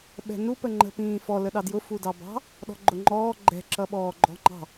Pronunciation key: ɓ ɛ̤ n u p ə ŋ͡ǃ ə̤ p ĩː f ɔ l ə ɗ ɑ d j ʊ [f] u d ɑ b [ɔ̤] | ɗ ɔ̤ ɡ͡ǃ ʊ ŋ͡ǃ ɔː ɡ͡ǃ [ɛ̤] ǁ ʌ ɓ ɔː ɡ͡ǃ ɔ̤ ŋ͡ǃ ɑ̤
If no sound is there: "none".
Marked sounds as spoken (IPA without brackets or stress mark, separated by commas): f, ɑ̤, ɛ̤